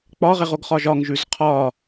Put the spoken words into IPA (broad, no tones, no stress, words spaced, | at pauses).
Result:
k͡pɒʁeʁoɡχɒʒ ɒŋʒʉz qʰɒ